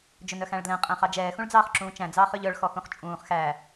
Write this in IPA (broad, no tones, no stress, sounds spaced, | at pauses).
d͡ʒ ɵ n œ x æ̃ ɭ d l ɛ̃ qʼ æ̃ χ ɑ d͡ʒ ɛː x ũ ɭ d͡z ɑː χ ǁ ũː t͡ʃ æ̃ d͡z ɑː χ ø ʎ œ ɭ x ɔ x ũ χ t͡ʃʼ ũː χ x æ